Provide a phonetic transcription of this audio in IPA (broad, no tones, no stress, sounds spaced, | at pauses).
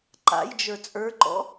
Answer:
ǃ a̰ j d͡ʒ ə˞ t͡sʼ ə˞ ǃ ɔ̰